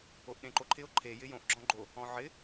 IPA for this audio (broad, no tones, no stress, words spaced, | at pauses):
oʔɗẽǃoǃʰɪo̯ ǃʰe jɪjõʔ ɡ͡ǁɔ̃ɡ͡ǃo | ɔ̃ʕɪ